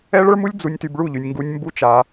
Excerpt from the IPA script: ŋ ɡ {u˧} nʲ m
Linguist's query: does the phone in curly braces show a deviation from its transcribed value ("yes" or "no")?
no